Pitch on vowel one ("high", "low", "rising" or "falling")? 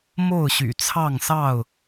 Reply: falling